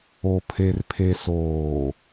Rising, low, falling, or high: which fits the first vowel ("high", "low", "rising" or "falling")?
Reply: low